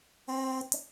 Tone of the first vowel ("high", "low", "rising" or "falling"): high